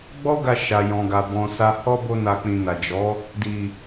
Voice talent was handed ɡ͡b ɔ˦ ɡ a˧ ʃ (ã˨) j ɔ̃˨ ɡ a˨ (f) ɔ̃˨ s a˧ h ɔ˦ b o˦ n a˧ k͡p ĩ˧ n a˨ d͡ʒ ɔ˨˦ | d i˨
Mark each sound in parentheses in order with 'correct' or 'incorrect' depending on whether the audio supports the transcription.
incorrect: a˨, incorrect: b

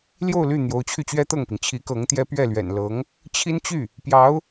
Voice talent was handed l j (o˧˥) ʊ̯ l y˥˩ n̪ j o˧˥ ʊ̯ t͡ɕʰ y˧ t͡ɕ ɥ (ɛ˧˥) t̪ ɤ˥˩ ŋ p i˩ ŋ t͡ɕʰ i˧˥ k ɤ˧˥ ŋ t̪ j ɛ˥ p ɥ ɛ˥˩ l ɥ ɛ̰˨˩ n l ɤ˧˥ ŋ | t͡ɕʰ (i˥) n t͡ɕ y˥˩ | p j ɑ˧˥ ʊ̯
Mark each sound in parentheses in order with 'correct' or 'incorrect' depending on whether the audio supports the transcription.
incorrect: o˥˧, incorrect: ɛ˥, correct

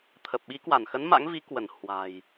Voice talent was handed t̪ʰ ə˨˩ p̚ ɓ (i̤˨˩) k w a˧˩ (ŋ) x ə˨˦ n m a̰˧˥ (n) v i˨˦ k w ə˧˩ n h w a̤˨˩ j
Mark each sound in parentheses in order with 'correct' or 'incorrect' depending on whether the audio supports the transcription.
incorrect: i˨˦, incorrect: n, incorrect: ŋ

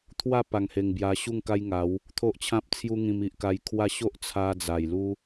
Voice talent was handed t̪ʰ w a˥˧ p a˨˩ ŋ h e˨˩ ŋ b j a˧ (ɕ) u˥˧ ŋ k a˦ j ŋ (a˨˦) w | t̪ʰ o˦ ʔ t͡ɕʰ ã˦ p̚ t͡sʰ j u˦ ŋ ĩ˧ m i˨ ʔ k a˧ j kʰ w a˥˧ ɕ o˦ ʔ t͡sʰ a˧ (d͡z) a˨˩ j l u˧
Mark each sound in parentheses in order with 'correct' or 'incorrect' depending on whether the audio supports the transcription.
correct, correct, correct

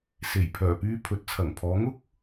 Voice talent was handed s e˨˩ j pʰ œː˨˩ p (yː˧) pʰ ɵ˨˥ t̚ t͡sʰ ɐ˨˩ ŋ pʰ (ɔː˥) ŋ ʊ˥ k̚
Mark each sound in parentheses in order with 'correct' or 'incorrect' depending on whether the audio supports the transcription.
correct, incorrect: ɔː˨˧

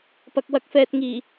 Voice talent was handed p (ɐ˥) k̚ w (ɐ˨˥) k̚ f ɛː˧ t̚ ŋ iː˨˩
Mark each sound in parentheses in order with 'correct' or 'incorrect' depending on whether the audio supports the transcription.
incorrect: ɐ˨, incorrect: ɐ˧

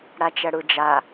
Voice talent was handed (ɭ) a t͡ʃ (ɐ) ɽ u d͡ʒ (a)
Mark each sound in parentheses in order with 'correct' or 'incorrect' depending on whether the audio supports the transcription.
incorrect: ɽ, correct, correct

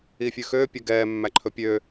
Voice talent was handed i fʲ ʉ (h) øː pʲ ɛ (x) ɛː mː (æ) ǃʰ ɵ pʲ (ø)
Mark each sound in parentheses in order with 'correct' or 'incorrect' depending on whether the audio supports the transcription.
incorrect: x, incorrect: ɡ, correct, correct

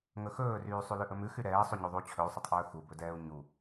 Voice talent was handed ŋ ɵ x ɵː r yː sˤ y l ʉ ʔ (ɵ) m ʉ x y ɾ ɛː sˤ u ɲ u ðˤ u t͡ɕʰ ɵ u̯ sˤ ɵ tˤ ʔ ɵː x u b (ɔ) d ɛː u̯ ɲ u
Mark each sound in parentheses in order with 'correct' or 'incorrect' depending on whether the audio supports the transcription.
correct, incorrect: ɵ

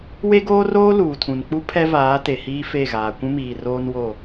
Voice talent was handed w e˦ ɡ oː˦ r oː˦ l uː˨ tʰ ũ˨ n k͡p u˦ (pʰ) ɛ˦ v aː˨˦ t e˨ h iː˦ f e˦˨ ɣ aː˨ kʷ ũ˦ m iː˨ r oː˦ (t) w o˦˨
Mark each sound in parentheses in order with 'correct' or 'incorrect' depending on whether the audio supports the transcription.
correct, incorrect: n

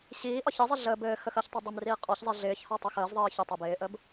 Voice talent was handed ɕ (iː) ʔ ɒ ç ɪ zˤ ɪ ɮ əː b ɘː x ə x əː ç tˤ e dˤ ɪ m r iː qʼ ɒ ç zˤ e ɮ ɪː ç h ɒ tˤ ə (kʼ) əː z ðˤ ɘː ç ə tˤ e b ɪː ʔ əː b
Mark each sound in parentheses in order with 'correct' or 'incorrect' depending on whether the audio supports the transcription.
correct, incorrect: x

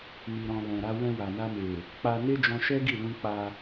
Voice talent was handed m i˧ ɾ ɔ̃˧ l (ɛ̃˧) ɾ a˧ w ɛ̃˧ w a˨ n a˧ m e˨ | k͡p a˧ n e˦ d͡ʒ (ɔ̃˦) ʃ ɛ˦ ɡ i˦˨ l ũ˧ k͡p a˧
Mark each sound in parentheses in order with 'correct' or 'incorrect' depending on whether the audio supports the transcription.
incorrect: ɛ̃˨, incorrect: ɔ̃˧

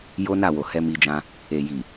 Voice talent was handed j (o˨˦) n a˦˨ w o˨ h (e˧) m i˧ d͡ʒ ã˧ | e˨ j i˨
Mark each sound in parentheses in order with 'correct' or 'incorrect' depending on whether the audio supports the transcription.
incorrect: o˦, incorrect: ɛ˧

